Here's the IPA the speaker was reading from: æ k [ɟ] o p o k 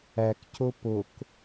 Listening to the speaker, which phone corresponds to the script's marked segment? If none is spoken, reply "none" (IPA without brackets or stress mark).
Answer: c